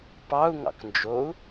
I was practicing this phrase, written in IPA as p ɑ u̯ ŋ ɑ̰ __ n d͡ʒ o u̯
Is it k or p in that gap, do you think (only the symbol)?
k